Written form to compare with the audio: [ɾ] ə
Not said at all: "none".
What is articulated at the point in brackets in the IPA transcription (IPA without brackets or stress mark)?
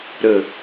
ɾ